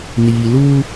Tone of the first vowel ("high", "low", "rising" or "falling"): low